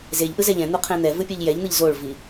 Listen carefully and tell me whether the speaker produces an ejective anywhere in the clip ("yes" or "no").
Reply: no